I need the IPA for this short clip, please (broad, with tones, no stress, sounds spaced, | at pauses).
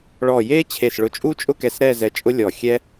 ɭ ɔ˧˩ j e˥ t͡ɕʰ e˧˩ s ɭ ʊ˧˩ t͡ʃʼ u˥ t͡ʃʼ ʊ˥˧ k ɛ˧ s ɾ ɛ˥˧ z ɛ˧ t͡ʃʼ ʊ˥ lʲ ɔ˧˩ xʲ ɛ˥